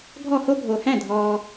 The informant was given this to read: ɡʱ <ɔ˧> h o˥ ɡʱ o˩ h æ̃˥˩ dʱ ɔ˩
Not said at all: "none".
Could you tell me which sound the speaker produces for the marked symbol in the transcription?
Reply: ɔ˥˩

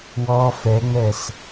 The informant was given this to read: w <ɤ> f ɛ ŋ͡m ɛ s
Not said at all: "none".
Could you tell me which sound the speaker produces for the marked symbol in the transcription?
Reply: ɔ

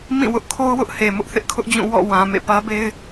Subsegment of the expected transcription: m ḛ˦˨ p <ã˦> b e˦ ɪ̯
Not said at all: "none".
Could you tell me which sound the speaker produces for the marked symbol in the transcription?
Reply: ä˦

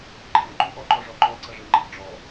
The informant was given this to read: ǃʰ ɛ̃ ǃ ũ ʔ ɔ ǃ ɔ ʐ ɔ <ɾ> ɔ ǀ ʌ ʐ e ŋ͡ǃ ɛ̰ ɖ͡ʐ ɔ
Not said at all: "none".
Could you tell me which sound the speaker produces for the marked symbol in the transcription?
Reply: ǃ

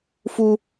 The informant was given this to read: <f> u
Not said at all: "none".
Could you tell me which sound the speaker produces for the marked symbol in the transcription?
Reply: f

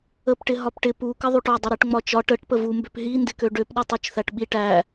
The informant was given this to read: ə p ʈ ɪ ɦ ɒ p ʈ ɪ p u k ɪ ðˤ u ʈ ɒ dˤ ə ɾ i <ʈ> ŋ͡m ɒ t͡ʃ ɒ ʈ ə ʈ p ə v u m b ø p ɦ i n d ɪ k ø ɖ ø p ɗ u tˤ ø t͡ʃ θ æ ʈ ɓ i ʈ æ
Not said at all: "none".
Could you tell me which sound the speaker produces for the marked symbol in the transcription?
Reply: ʈ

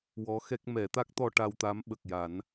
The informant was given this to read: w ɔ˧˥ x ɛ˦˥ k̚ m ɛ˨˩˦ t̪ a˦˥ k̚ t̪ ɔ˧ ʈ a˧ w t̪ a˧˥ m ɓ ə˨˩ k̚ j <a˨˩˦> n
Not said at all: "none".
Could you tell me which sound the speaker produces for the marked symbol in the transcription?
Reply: a˨˩˦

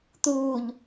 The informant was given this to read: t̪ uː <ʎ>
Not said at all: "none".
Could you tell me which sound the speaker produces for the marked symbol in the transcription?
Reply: ʎ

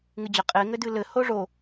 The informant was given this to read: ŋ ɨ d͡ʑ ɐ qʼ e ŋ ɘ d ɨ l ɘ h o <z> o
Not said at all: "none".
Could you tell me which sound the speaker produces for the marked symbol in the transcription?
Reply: ʐ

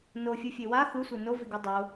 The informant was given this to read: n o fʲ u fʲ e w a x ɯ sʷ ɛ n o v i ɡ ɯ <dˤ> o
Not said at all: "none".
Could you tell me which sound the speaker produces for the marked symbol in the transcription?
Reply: dˤ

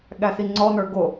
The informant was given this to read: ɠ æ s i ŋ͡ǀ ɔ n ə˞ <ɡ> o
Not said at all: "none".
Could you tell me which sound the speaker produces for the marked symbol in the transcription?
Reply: ɡ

